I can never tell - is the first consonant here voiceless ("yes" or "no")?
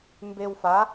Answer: no